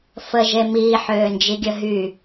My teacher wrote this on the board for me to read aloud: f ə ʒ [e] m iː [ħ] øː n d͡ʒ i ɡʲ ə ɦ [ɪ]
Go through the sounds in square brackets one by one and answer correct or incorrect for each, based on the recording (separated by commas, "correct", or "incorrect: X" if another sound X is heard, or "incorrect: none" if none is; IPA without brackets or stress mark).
correct, correct, incorrect: y